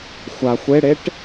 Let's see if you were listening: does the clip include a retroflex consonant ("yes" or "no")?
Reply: yes